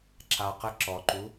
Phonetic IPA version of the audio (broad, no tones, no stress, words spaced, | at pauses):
ǁa qə ǁɔǃu